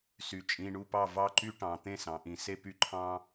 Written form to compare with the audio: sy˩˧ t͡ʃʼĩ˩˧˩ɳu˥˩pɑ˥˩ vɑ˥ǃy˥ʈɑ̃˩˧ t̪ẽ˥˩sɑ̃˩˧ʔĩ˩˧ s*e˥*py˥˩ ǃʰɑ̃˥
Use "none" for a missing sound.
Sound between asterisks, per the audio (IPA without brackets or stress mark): e˥